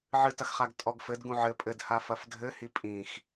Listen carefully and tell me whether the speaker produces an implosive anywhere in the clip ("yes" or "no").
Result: no